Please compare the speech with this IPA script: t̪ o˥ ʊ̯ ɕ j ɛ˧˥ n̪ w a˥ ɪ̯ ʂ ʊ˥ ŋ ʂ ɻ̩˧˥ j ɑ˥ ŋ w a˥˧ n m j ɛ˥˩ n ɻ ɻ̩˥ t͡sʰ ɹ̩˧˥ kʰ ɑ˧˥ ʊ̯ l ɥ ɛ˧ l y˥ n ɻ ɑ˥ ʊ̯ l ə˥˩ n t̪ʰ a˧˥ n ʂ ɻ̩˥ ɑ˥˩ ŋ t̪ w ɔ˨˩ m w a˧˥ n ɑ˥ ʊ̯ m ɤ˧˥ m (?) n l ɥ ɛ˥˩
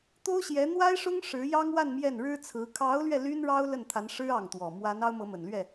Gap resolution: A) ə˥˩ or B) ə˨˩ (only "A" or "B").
B